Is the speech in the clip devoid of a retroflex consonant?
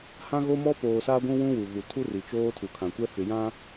yes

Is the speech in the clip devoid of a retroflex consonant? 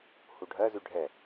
no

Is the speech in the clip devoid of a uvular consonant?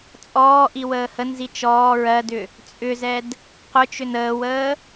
no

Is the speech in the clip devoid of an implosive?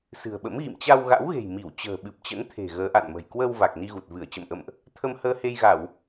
no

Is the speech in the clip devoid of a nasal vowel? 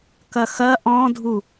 no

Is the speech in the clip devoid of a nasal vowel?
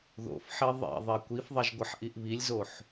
yes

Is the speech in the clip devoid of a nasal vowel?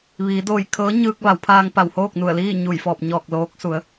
yes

